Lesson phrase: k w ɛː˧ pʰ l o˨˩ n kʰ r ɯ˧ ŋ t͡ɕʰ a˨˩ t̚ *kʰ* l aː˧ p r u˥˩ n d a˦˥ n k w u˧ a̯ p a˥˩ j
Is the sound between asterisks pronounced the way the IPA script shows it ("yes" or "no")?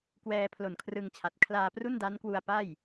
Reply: yes